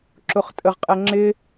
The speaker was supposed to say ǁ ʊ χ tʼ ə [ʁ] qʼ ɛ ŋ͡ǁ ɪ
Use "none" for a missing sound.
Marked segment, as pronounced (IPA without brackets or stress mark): ʁ